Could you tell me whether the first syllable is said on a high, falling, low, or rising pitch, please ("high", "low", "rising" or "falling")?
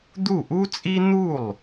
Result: falling